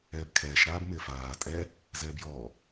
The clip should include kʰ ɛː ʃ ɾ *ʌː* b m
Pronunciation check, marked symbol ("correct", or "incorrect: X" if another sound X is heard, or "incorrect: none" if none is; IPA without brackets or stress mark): incorrect: aː